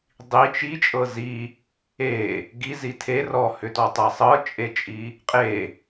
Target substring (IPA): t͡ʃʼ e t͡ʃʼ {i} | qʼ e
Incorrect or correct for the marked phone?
correct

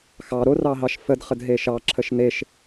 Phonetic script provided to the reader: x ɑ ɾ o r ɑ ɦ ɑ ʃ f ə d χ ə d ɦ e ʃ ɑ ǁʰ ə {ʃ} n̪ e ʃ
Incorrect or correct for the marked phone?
correct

